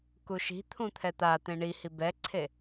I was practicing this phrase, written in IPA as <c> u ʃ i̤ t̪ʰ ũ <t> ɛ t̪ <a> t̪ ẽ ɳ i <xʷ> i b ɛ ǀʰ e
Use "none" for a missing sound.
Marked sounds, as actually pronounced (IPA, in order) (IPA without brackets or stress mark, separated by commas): k, t̪ʰ, a, h